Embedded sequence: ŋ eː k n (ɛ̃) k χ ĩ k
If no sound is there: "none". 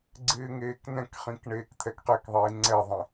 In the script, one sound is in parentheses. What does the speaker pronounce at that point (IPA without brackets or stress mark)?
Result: ɛ̃